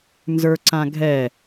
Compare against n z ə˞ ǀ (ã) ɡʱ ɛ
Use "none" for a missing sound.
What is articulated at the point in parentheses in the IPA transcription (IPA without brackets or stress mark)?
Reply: ã